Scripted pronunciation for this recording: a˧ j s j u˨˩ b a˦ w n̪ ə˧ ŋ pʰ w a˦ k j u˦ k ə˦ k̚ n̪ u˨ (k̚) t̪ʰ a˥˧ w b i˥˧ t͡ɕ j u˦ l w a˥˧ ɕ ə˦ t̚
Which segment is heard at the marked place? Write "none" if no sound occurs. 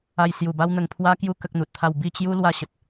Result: t̚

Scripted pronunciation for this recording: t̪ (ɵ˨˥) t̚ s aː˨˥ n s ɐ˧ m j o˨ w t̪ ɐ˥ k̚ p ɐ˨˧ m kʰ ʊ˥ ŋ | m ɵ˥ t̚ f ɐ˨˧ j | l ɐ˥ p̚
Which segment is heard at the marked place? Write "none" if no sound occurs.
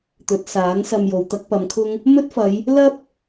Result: ɵ˨˥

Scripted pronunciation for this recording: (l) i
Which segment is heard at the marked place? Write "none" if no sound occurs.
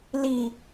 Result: l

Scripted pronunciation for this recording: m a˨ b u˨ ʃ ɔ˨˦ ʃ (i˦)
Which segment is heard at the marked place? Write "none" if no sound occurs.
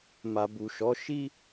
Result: i˦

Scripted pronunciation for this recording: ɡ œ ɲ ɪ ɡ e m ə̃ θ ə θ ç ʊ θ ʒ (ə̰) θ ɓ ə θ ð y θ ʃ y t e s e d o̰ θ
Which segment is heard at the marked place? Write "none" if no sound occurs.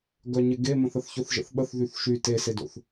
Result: ə̰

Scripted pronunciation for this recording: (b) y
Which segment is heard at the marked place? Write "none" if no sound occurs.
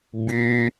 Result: b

